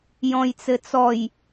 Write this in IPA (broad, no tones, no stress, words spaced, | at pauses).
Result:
jɔ̃jt͡sɘt͡sɔj